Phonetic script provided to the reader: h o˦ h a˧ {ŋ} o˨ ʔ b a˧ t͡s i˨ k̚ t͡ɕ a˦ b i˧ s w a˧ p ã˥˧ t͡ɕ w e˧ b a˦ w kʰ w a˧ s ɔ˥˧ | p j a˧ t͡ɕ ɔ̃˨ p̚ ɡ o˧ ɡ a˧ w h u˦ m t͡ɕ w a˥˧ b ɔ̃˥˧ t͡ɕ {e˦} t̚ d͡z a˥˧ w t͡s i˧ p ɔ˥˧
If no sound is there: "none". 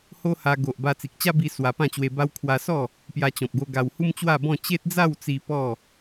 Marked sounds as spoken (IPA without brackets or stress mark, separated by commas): ɡ, e˦